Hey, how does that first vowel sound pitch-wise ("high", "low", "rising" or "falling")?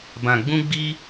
low